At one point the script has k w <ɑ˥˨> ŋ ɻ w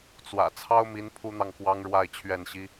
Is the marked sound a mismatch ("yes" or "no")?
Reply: yes